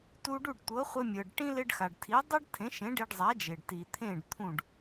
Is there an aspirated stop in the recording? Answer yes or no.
yes